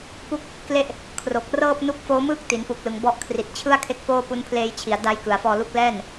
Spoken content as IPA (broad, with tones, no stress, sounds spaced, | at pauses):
p u˥˩ k̚ | k l e˥˩ ʔ | kʰ r o˨˩ k̚ r ɤː˥˩ p̚ n u˦˥ k̚ f oː˦˥ m ɯː˥˩ k̚ t i˩˦ n p u˨˩ k̚ l ɯ˨˩ ŋ b ɔ˦˥ ʔ kʰ r i˨˩ t̚ t͡ɕʰ ɯ˥˩ a̯ kʰ e˦˥ k̚ f oː˥˩ p u˦˥ n pʰ l eː˧ j t͡ɕʰ i˩˦ a̯ d a˦˥ j k ɯ˨˩ a̯ f ɔː˧ l u˦˥ k̚ l ɛː˥˩ n